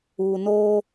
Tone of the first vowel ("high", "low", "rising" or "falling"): low